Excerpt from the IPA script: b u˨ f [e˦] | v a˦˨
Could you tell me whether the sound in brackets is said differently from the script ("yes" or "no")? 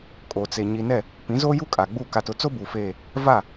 yes